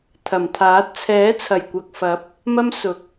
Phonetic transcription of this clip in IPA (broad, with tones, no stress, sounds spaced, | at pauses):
t̪ʰ ɐ˨˩ m t̪ʰ aː˨˥ t̚ t͡sʰ ɛː˨˥ t͡sʰ ɐ˨˩ j kʷ ɐ˨ k̚ f ɐ˨˥ p̚ | m ɐ˥ m s ʊ˨˥ k̚